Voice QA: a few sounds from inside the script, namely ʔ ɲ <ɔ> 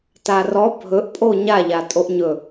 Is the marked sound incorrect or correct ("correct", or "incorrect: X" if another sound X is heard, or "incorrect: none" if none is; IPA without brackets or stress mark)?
incorrect: ɵ